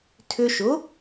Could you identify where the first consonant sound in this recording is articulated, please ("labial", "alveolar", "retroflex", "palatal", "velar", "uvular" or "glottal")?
alveolar